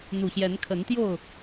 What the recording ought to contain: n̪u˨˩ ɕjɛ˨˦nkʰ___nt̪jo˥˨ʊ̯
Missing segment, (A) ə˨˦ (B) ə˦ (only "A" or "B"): A